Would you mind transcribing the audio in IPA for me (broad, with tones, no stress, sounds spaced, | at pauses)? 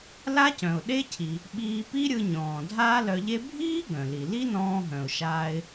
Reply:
l a˥ c œ̃˩ ʊ̯ ɗ e˥ cʰ i˩ | ɓ iː˧ p i˥ ɾʲ ɯ˧ ɲ ɔ̃ː˩ dʱ aː˥ l œ˧ ʎ e˥ bʱ iː˥ ɡ œ̃˩ l i˩ l i˥ n ɔ̃ː˧ ɦ œ̃˩ ʊ̯ ʃ aː˧ ɪ̯